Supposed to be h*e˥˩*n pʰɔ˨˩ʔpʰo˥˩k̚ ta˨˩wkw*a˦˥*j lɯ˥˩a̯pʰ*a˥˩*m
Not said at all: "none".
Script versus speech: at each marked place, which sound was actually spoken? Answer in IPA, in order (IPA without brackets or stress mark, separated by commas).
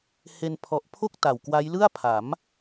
e˧, a˦˥, a˩˦